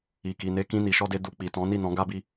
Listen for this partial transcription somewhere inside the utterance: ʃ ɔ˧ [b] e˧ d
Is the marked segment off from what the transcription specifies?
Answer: yes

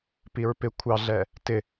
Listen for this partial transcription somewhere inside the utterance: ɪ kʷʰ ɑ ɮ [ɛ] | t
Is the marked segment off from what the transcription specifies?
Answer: no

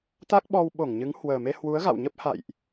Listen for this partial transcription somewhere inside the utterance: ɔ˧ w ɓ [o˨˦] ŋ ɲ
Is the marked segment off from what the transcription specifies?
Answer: yes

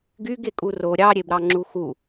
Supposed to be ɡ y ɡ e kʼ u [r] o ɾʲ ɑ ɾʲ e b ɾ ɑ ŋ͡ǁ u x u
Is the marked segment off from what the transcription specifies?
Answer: no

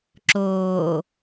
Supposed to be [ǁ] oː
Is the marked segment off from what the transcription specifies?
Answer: no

